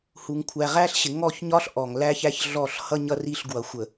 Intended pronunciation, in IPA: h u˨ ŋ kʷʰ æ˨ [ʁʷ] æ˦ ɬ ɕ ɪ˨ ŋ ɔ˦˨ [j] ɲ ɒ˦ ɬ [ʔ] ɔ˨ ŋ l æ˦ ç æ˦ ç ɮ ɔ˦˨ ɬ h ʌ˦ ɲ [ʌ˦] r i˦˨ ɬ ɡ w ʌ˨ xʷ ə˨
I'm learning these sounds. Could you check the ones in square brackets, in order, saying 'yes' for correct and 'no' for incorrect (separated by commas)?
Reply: no, no, yes, yes